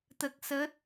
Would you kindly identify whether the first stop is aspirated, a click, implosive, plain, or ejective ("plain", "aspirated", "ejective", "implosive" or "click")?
plain